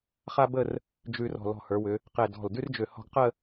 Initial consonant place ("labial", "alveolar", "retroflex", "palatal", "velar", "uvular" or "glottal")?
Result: uvular